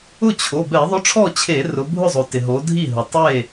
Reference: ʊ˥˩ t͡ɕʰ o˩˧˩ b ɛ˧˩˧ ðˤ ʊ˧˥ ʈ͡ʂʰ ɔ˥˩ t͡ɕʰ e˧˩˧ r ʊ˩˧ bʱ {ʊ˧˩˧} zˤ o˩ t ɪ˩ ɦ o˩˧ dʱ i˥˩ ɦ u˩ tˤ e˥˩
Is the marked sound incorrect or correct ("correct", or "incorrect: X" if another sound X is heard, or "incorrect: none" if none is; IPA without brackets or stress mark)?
incorrect: ʊ˥˩